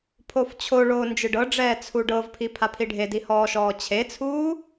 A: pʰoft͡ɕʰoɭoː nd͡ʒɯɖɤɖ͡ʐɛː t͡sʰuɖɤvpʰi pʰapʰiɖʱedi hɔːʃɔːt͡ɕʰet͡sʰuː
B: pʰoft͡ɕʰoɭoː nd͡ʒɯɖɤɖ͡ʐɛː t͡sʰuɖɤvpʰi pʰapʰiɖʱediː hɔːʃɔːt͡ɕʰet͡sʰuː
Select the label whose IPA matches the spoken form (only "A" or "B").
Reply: A